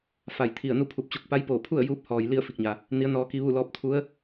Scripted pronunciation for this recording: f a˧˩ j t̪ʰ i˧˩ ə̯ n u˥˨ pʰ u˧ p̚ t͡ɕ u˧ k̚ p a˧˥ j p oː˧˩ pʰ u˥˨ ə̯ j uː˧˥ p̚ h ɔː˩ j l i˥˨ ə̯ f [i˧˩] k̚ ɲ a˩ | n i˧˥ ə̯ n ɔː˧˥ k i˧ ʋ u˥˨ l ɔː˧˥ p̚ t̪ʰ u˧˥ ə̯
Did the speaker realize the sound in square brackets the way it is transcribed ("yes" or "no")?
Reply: yes